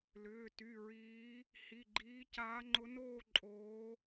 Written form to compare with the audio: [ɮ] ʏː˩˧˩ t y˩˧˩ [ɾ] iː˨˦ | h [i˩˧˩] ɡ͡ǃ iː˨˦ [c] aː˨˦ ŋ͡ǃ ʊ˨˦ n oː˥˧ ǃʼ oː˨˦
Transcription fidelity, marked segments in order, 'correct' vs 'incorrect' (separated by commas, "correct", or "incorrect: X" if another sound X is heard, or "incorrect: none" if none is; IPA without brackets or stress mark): incorrect: l, incorrect: ɹ, correct, correct